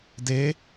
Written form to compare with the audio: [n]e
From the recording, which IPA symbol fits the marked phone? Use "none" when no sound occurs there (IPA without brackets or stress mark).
d